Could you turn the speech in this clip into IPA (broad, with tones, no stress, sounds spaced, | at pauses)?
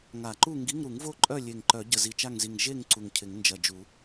ŋ a˨˩˦ ǃ u˥˨ ŋ ɡ i˧˥˧ ŋ ɾ u˨˩˦ ŋ v o˥˨ ǃʼ œ˥˨ lʲ e˧˩ ŋ ǃ œ˨˩˦ ɟ ə˧˩ z i˧˩ t͡ʃ a˥˨ ŋ z i˧˩ ŋ ʒ e˥˨ ŋ ǀ u˧˩ ŋ cʰ ɪ˨˩˦ ŋ n d͡ʒ ɐ˧˩ d͡ʒ u˨˩˦